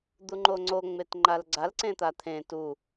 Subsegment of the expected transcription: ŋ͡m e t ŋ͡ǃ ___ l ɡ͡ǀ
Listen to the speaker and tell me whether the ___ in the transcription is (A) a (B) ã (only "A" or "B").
A